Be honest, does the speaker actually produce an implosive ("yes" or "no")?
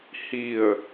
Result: no